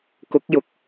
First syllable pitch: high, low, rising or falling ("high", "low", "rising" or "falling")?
rising